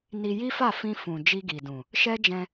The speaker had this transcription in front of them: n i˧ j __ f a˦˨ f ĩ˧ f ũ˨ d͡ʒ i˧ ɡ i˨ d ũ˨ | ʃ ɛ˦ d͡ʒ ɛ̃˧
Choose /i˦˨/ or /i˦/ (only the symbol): i˦